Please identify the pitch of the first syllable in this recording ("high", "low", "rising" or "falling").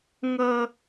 high